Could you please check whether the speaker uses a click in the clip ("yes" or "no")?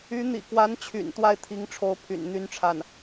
no